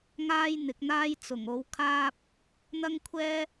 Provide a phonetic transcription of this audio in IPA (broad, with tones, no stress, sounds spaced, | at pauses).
ŋ aː˥ j n̪ ɪ˨˥ k̚ n̪ aː˥ j t͡s ʊ˨˩ ŋ o˨˥ w kʰ aː˥ p̚ | n̪ ɐ˥ ŋ kʷʰ ɛː˥